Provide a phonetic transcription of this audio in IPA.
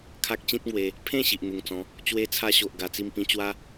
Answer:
kʰa˦k̚t͡ɕĩ˦t̚ŋwe˧ | pʰẽ˥˧ ɕi˨ʔn̪u˨˩ŋt͡sɔ̃˨˦ | t͡ɕwe˦t͡sʰa˦ɕo˨ʔ ɡa˨˩t͡si˧m pĩ˧ t͡ɕwa˦

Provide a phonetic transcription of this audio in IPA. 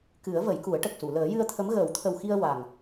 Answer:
kɨ˨˩˦ə̯ və˨˩˦jku˨˩˦ə̯ʈə˨˩k̚su˨˩˨ ləː˨˩˦jɨ˧ə̯t̪ʰə˧˥m ɣəː˨˩˦wt̪ʰə˨˩wxi˧ə̯ wa˨˩ŋ

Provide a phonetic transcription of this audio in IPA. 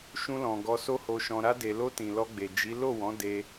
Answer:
ʃũ˧lɔ̃˨ ɡɔ˧so˦ho˧ʃɔ̃˧ ɾa˧de˨lo˧ tĩ˨lɔ˧ɡ͡be˨ d͡ʒi˨˦ lo˦˨wɔ̃˨˦ de˦

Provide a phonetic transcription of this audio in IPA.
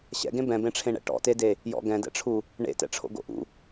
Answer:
ɕɛ̰ɡẽ bɛ̃bẽʈ͡ʂʰẽɳɛ̰ ʈɔ̰tede | jɔ̰ɡɛ̃dɛ̰ʈ͡ʂʰu | ɳḛtɛ̰ ʈ͡ʂʰo̰ɡo̰ʔṵ

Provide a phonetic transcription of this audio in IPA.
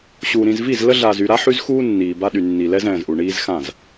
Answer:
ɕuː˨ ɾĩ˨zvi˦˨z lə˦ ɮaː˨zy˨ɾa˦ ħy˦zxuː˦ nːiː˨ba˦ɗy˨nːi˨ lɛ˦zɛ̃ː˨zʔu˨ ɳiː˦zxã˦˨z

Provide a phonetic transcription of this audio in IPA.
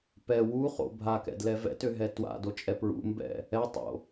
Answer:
pɛ wuχo̰ bʱakɛ̰dlɛ vɛ̰tøɦɛ twa̰dot͡ʃʼɛ pɹṵmbɛ̰ | ɛtˤo̰

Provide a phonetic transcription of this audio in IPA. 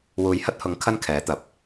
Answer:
wuː˨jhɐ˥t̚hʊ˨˥ŋ kʰɐ˥nkʰɛː˨˥t̪ɐ˨˥p̚

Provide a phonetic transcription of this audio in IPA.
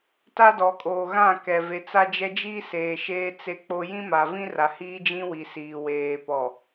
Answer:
ta˦dɔ˨kʼo˨ ɣã˦˨kɛ˨ ve˨t͡sa˦d͡ʒɛ˦ d͡ʒi˦seː˨ ʃeː˦t͡se˦k͡po˦ jĩ˦ma˨vĩ˦ ra˨hiː˦d͡ʒĩ˦wi˨ siː˨weː˨pɔ˨

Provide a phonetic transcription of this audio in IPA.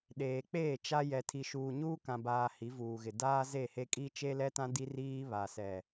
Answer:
ɗeː˨k͡peː˦˨t͡ʃa˦ jɛ˨tʰi˨ ʃuː˨ ɲuː˦ kã˨baː˨ hi˨˦vuː˨ɣɪ˨ daː˦ ze˦˨he˦ kʼi˦ t͡ʃe˦lɛ˦tã˦ di˦riː˦ βa˨sɛ˨

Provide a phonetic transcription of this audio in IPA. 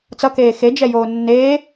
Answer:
t͡sʌkeː xed͡ʒɛjoː nːe

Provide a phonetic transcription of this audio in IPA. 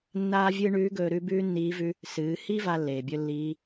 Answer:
nːaː˥vʲɨː˥ ɳʉː˧˥ɡɵː˧ ɾʉ˧˥bʉː˥nːiː˧˥vʉ˧˥ | sɨː˩˧hi˥ va˥lːeː˩bʲɵ˥lːiː˧˥

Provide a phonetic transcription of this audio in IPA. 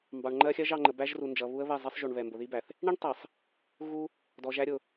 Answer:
mbɑ˨ɳŋ͡ǃɜ˦xʲɜ˦ʒ ɑ˨ ŋ͡ǃə˨bæ˦ʒ ru˨nd͡ʒʌ˨ βu˦ə̯βɛ˦˨zˤi˦sˤ ʒu˨ɳβɛ˨ mbʊ˨ði˦bæ˨θ | ɳi˦ɳtˤɛ˨sˤ | ɣu˦ | dɔ˨ʒæ˦ɾʲʊ˨

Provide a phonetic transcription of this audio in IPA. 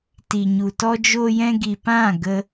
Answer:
ti˨ɲu˨ tɔ˧d͡ʒo˧jɛ̃˧ɡi˨ pã˦˨ɡə˧

